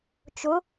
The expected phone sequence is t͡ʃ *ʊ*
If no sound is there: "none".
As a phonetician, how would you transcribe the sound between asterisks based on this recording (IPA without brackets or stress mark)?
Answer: ʊ